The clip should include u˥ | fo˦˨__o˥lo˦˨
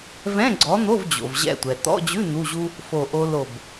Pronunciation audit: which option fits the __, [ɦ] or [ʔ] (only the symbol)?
ʔ